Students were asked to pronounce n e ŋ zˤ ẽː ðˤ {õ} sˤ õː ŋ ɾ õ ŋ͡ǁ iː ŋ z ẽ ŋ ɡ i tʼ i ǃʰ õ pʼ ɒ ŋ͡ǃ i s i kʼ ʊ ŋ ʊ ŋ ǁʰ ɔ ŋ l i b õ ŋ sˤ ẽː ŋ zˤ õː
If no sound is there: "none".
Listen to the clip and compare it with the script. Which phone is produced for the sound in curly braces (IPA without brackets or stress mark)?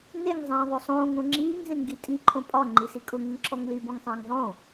o